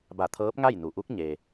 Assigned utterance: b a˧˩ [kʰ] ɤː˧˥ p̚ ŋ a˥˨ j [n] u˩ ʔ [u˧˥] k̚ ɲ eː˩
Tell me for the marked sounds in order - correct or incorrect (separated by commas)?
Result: incorrect, correct, correct